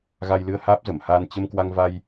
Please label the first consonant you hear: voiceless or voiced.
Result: voiced